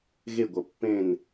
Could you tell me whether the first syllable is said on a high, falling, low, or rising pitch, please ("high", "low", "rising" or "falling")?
falling